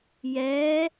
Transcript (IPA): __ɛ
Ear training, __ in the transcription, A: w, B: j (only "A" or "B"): B